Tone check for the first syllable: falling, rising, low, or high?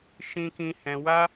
high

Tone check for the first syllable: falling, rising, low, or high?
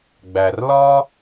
low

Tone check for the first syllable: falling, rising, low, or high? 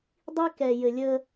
high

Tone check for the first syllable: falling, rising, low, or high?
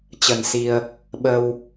low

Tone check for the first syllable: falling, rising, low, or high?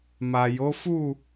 low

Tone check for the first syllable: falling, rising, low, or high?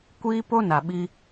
high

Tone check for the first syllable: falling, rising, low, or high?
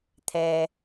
low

